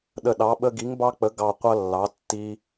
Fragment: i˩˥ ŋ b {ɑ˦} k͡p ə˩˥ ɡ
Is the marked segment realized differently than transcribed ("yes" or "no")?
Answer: no